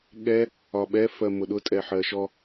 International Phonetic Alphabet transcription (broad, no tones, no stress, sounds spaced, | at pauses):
ɠ ɛ | ɒ ɓ ɛ f ɜ m ʊ ɗ ʊ tʼ ɛ ħ ɜ ʃ ɔ